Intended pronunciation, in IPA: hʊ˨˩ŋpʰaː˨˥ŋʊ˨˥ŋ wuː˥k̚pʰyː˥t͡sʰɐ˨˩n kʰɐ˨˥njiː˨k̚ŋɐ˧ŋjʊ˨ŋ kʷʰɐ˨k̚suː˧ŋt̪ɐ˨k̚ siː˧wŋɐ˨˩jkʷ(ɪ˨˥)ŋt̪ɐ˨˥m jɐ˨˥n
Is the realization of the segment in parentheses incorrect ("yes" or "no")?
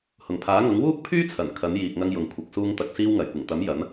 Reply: yes